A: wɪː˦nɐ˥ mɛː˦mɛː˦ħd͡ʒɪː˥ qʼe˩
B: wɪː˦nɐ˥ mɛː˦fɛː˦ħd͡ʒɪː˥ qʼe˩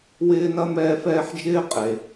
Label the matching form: B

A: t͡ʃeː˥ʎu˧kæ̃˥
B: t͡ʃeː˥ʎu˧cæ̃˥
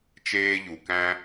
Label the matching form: A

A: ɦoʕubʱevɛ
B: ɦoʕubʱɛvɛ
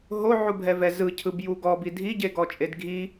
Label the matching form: B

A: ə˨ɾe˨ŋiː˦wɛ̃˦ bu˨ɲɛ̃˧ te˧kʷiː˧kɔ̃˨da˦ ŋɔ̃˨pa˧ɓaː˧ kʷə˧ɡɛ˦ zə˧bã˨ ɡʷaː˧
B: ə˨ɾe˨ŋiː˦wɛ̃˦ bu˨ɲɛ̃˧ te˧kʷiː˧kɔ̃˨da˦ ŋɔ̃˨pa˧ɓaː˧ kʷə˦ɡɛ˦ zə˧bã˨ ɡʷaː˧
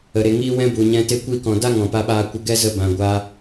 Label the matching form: A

